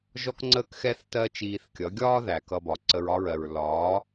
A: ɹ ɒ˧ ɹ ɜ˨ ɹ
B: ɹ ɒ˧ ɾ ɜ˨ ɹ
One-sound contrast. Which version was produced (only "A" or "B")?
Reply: A